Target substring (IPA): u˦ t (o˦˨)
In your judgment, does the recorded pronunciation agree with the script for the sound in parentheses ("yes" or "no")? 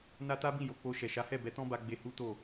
yes